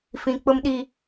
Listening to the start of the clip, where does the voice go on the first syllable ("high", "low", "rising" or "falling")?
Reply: high